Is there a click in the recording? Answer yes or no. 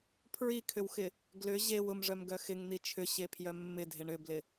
no